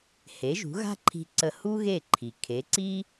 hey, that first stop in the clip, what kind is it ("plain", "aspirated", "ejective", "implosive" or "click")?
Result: click